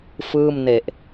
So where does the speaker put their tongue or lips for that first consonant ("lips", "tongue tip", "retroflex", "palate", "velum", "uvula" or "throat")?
lips